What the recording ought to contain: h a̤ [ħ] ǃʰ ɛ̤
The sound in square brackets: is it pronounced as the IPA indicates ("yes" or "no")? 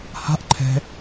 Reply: no